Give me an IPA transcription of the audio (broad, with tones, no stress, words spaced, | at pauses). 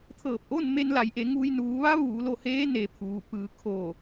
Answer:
t̪ʰɤː˧˩p̚ʔo˥˨n me˧nla˩˧jʔe˩˧ŋuː˧j nuː˩˧ʋa˧˥ ʋuː˩˧lo˥˨heː˧˥ ne˩˧pʰuː˩pɯː˩˧ kʰoː˧˩